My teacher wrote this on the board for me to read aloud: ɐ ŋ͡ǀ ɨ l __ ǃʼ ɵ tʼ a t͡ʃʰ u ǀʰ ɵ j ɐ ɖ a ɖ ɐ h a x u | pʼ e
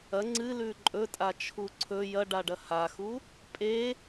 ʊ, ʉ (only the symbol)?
ʉ